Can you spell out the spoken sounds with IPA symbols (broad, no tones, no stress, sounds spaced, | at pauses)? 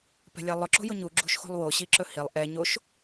p ɛ̤ lʲ a lˠ ʊ ǁ o̤ j ʊ ɲ u ɡ͡ǁ ṳ ʃ x o̤ lˠ w o ɕ i ǁ ɵ h i lˠ ʔ ɛ ɲ o ʃ